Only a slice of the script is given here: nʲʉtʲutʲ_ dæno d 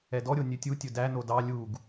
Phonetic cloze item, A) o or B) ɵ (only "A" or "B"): B